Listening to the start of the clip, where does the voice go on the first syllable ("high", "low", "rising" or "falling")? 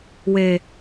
low